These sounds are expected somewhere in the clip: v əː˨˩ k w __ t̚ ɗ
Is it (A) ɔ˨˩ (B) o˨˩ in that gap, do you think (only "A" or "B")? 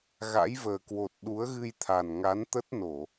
B